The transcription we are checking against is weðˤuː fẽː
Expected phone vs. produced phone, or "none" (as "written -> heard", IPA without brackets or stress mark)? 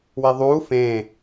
none